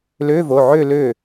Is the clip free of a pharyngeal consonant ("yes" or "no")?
no